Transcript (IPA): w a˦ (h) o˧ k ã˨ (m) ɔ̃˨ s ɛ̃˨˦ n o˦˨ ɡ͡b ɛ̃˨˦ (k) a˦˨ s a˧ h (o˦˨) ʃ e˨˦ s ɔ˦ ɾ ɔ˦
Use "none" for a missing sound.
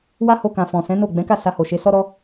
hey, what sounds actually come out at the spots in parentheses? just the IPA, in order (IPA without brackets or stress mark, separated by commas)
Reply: h, f, k, o˨